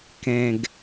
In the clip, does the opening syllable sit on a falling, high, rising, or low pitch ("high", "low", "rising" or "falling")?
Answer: low